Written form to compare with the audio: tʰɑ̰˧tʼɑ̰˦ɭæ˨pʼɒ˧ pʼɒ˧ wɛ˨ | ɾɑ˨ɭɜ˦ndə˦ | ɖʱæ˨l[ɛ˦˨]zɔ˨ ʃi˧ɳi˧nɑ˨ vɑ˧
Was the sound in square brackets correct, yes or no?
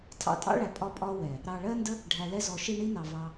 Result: yes